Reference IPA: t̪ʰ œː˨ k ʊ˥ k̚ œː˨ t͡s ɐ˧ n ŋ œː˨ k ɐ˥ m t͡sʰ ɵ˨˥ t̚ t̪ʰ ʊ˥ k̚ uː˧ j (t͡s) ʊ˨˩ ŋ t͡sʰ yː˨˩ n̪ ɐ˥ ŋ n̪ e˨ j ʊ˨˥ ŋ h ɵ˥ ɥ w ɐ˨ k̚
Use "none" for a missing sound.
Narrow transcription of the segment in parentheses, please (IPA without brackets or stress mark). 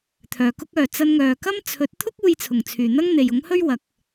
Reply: t͡sʰ